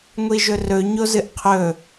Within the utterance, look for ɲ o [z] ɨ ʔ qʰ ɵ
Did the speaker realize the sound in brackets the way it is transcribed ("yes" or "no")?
yes